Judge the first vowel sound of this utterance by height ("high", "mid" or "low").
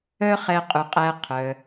mid